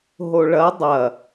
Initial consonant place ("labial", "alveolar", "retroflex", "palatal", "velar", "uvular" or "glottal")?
glottal